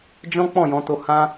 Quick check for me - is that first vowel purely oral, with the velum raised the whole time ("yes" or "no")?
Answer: no